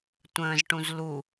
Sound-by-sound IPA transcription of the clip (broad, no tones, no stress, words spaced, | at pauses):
tʷə̃ːzʈũz lu